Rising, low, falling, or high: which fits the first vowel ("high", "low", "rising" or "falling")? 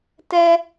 high